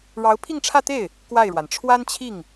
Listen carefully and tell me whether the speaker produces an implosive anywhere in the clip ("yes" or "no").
no